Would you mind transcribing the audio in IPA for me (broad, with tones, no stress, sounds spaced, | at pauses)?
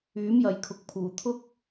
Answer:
yː˨˥ m j ɐ˨ j kʰ ʊ˨ k̚ pʰ uː˨˩ t̪ʰ ʊ˥ k̚